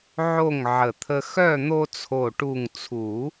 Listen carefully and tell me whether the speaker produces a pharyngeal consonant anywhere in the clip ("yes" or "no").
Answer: yes